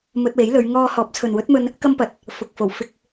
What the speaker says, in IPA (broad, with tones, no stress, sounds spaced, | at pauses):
m ɵ˧ t̚ w e˨˥ j l ɵ˨˧ ɥ ŋ ɔː˧ h ɔː˨˥ p̚ t͡sʰ ɵ˨ n w ɵ˨˥ t̚ m ɵ˧ n | k ɐ˥ m p ɐ˨ t̚ | f ʊ˨ k̚ f o˨˩ w f ɪ˧ k̚